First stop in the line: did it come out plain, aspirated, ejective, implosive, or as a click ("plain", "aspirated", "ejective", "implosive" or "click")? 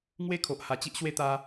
aspirated